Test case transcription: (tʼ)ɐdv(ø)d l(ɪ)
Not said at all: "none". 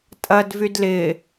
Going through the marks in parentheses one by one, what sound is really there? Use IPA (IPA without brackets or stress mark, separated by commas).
tʼ, y, ɪ